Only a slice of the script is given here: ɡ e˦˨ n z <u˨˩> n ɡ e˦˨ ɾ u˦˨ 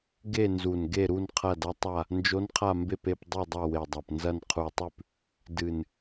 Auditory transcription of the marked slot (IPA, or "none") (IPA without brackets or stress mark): u˨˩